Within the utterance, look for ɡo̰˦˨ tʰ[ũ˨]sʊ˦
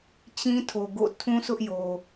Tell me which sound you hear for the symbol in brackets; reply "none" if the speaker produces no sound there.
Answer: ũ˦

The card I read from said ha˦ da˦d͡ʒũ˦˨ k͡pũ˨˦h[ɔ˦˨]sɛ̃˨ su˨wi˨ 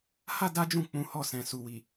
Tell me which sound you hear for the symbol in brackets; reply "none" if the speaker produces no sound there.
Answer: ɔ˦˨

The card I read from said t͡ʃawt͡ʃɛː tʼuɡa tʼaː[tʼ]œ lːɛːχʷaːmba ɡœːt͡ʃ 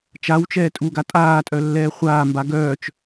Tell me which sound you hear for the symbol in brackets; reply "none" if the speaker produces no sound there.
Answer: tʼ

